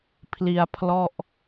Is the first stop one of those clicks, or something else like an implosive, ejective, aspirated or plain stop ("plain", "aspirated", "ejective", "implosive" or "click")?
aspirated